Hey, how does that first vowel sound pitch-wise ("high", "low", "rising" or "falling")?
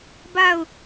falling